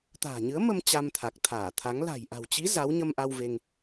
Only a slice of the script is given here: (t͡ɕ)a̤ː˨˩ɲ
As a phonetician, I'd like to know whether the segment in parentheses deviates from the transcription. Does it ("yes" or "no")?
yes